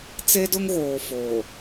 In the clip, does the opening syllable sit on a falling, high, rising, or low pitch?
high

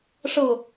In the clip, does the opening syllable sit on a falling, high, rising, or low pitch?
falling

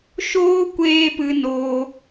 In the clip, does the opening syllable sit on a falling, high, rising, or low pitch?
high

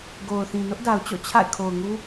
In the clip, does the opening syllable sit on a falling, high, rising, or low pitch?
low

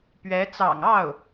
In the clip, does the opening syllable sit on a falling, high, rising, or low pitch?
rising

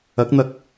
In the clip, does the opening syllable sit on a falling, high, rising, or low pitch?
rising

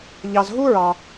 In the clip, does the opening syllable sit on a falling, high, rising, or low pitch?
low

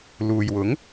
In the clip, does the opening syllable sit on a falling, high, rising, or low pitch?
low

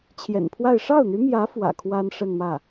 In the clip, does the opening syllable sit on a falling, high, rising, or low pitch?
low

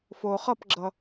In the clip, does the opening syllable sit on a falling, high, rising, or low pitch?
low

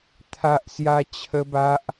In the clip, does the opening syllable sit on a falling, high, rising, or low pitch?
high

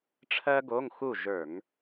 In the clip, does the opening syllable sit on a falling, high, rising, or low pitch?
high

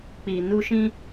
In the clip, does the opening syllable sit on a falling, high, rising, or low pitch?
low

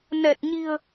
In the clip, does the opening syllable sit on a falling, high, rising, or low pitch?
low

